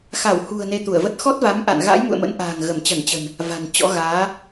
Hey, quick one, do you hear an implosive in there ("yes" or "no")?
no